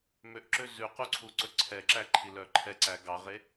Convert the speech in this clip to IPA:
m ø ʔ ǁ ø z ʉ q u ǀʰ u ǀ ɵ ǀʰ ɛ ǁ æ ǃʰ i l œ ǃʰ ɛ ǀ æ ɡ ɑ ʁ e

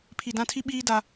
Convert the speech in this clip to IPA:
pʰ i˨ d ã˦˨ tʰ i˦ ɓ iː˦ d a˦

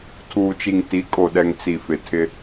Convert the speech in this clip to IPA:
tʰ uː˨ t͡ʃ i˨ ŋ t i˨˦ kʼ o˨ ɗ ɛ˨ ŋ t͡s i˨ f ɪ˨ tʰ ɪ˦

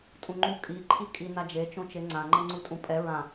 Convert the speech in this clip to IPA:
tʼ ũ ŋ͡ǃ u kʼ i ǃʰ i kʼ i n a d͡ʒ e t͡ʃ õ t͡ʃ e ŋ͡ǀ ã ŋ͡ǃ ɤ ŋ͡ǀ u tʼ ũ pʼ ɛ ɹ ã

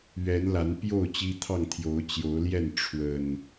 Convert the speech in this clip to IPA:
ɥ ɛ˨˦ n l a˨˦ n p j o˥˨ ʊ̯ t͡ɕ i˦ t̪ʰ ɑ˥˨ ŋ t̪ʰ j o˨˦ ʊ̯ t͡ɕ j o˨˦ ʊ̯ l j ɛ˥˨ n ʈ͡ʂʰ w ə˨˩ n

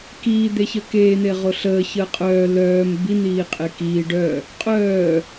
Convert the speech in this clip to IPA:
k iː d̪ e ç əː k eː n̪ e ʁ o ɬ əː ç əː qʼ œː l œː m b i n̪ iː qʼ e k iː ɖ œ | qʼ œː

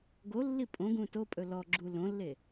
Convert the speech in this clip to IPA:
ɡ o lː i pʼ õ ɡ ũ t o pʼ ɵ l ɔ ɡ͡ǁ u l õ lː e

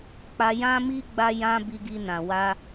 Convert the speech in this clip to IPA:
k͡p a˧ j ã˦ m i˦ ɡ͡b a˧ j ã˧ b i˧ ɡ i˧ n ã˨ w a˧

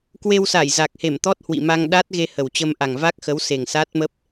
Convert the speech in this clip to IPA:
k w e˧ w s a˧˩ j z a˨˩ k̚ h e˧˩ m t̪ ɔ˦˥ t̚ h w ḭ˧˨ m a˧ ŋ ɗ a˦˥ t̚ ɣ e˧ h ə˨˩ w t͡ɕ ə˧ m ʔ a˨˩ ŋ v a˦˥ k̚ x ə˨˦ w s e˨˩ ŋ s a˦˥ t̚ m ə˦˥ p̚

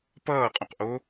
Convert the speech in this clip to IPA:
p ʌː qʼ õ q ʔ o

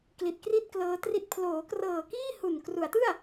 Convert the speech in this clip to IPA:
k l i˨˩ t̚ k r i˥˩ t̚ k l ɤː˧ t r i˦˥ t̚ pʰ l oː˩˦ k r ɤː˨˩ k iː˥˩ h u˨˩ n k r u˩˦ a̯ t ɯ˥˩ a̯

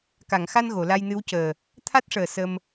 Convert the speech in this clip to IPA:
k a˨˩˨ ŋ x a˧ n ɣ o˨˩˨ l a˧ j n ɨ˧˥ w c əː˨˩ | t̪ʰ a˦˥ t̚ ʂ əː˨˩ s ə˧ m

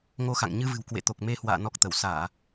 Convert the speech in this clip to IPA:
ŋ o˧ x a̰˧˨ ŋ ɲ ɨ˧ v ɨ̤˨˩ w k w ḛ˧˨ t̪ o˨˩ k̚ m e˧ h w a̰ː˧˨ n ɔ˦˥ k̚ t̪ ə˧˩ w s aː˧˩˨

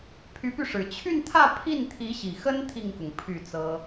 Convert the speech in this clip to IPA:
pʰ y˧˥ p y˧ ʂ ɻ̩˨˩ t͡ɕʰ y˥˧ n t̪ʰ ä˥˧ pʰ i˥˩ n t̪ʰ i˧˥ ɕ i˨˩ x ə˥ n t̪ʰ i˥˩ ŋ k ʊ˩ ŋ pʰ y˥˩ t͡s ɤ˥

